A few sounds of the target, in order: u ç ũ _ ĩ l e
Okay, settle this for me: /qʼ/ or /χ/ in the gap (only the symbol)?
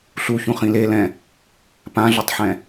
χ